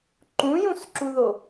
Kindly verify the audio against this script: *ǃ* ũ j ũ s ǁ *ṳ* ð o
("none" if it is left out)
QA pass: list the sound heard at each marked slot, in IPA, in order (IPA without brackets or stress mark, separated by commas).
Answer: ǃ, u